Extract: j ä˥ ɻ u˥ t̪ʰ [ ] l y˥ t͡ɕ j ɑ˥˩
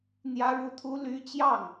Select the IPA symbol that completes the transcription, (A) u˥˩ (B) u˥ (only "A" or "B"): B